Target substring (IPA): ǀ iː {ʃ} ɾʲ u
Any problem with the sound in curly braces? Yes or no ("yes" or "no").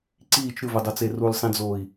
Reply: yes